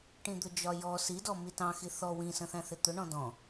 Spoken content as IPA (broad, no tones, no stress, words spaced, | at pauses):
ʈĩd̪ʊd͡ʒɒjɔ sidɔ mitɑ̃xi θɔ wĩsə̃θæ̃ θɪt̪ʊɳɔ̃ dɔ̃